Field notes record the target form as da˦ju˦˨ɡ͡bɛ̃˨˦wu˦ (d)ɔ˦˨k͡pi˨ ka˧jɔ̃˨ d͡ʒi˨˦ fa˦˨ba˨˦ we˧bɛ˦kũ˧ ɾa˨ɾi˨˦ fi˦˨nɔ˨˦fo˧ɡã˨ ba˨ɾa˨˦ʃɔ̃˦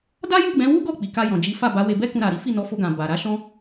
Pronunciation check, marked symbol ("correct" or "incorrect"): incorrect